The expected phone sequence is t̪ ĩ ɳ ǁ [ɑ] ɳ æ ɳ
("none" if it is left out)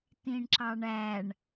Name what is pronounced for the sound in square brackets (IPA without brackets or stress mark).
ɑ